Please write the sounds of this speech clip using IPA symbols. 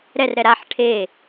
ɾɛrɾɛ ɾaħ ʈʰe

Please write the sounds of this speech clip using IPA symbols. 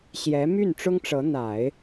ɕjɛ˧˥ my˥˩nʈ͡ʂʊ˥ŋʈ͡ʂɤ˧˥ n̪a˨˩˦ɪ̯

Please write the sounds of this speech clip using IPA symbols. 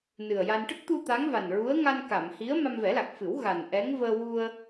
nɨ˨˩ə̯ja˧n ʈə˦˥k̚t̪u˧ t̪a˧˥ŋva˨˩nɹu˧˥ə̯ ŋa˧nka˨˩˨m hi˧˥ə̯ ma˧mvɛ˨˩˦la˨˩k̚fɨ˨˩˦w ɣa˨˩nʔɛ˧˥ŋ vəː˧wu˧ə̯

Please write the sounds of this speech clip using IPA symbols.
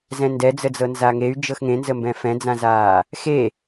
zɛ̃ndɛd͡zəd͡zɤ nzaŋey̯ d͡ʒɤxŋẽnzəmbɛ̃ fɛ̃d͡zãzaː | xe

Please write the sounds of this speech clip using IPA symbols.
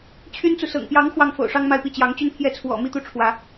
t͡ɕʰy˥nt͡su˨sɤ̰˨˩ŋ pjɑ˧˥ŋ xwɑ˥˩ŋfo̰˨˩ʊ̯ʂɑ˥ŋ ma˥˧ɪ̯pi˥˩ t͡ɕjɑ˧˥ŋt͡ɕy˥˧npʰjɛ˥˩ t͡sʰwɔ̰˨˩mi˥t̪u˥˩ ʈ͡ʂʰwä˧˥

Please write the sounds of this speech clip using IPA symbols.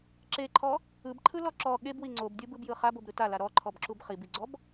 ǁeǃʰɔ | ɯbǃʰɯlɔ ǁɔ ɠebwi ŋ͡ǀobdʲɯbɯbjɯ χabobɾɯ tala ɾɔǃʰɔbǁub χibiɡ͡ǀɔb

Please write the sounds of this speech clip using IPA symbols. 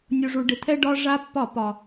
nʲu˨ʐu˨ ɖɪ˨t̪ʰɛ˦ ɖɒ˦ ʐa˦pːɒ˦˨ pɒ˨

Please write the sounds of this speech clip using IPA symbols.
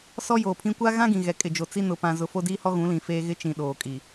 sɔ˦joː˨pʰĩ˦ kʷa˦ɣã˦ɡĩ˨ɣɛ˨ kʼɪ˨d͡ʒo˨t͡si˦ nʊ˨pã˨zʊ˨ fo˦diː˦hɔ˦ ɣũ˨˦lĩ˨feː˦ɣɪ˦ t͡ʃĩ˨ɗoː˨kʼi˨

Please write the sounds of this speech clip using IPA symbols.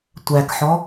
tʷækħɔ

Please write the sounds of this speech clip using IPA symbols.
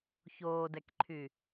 çoːdɛkǃʰy

